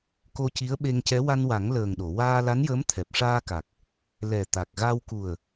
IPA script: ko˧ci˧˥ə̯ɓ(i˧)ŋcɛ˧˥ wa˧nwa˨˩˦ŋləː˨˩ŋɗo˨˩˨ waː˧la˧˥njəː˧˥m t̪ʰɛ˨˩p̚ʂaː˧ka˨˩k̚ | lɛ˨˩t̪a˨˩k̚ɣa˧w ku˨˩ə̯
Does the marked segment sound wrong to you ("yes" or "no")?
yes